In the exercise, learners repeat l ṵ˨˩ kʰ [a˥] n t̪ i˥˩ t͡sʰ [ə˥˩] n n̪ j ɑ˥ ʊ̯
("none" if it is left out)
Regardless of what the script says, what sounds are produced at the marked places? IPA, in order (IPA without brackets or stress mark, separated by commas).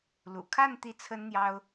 a˥˧, ə˥